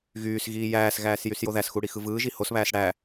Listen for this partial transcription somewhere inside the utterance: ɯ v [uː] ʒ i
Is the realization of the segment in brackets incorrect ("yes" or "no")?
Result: yes